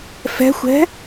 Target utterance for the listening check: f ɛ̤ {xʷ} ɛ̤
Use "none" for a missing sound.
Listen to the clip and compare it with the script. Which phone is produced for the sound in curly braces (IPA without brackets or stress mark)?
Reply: xʷ